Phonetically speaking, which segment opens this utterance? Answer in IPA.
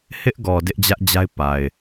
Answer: h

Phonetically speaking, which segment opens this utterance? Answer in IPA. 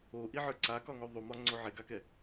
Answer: o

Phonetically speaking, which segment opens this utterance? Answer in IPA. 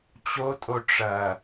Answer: t͡ɕ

